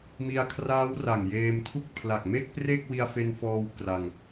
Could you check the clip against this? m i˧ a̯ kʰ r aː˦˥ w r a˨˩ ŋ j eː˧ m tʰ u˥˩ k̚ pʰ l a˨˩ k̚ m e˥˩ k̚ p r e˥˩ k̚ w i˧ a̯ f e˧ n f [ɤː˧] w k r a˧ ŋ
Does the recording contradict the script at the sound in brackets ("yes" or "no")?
yes